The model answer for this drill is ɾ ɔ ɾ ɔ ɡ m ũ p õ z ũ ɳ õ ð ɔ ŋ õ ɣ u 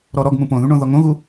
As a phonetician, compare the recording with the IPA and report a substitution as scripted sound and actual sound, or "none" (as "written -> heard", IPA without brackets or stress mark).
z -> ð